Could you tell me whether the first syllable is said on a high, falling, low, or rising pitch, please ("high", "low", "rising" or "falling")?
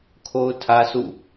high